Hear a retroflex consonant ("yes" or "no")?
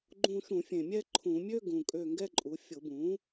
no